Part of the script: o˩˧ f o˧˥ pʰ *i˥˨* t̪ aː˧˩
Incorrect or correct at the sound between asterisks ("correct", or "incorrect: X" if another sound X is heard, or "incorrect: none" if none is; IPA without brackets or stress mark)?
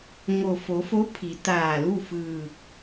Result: incorrect: i˩˧